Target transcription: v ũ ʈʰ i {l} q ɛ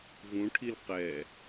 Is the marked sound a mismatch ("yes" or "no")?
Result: no